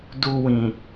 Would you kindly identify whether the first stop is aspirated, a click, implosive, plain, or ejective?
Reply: plain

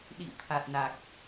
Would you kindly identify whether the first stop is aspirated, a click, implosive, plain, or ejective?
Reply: implosive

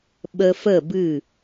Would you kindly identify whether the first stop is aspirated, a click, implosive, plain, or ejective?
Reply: implosive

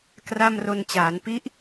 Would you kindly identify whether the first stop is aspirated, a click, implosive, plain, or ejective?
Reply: plain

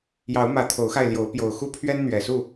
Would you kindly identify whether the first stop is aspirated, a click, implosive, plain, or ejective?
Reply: aspirated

